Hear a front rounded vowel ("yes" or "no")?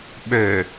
yes